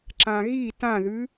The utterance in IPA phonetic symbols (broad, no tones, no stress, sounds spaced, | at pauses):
ǁ ã ɣ i t ã ð ʉ